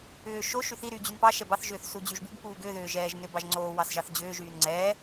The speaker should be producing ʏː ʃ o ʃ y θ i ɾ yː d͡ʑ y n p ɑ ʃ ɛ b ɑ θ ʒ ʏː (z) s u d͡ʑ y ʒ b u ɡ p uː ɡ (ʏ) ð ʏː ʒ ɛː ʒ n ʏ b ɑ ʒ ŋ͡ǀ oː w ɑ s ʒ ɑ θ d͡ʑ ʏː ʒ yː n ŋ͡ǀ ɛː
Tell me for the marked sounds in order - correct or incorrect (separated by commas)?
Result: incorrect, correct